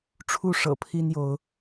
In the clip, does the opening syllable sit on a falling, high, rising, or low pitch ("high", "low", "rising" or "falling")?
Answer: falling